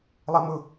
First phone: lˠ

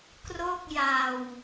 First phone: k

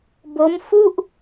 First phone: b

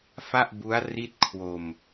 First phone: f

